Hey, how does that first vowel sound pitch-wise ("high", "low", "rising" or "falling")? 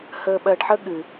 low